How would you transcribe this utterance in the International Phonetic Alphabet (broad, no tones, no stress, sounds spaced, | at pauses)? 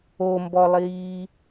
o m b ɔ lˠ iː